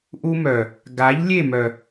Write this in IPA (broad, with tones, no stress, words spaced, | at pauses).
ʔu˦mœ˨ | ɡa˨˦ʎ lʲe˦˨mœ˨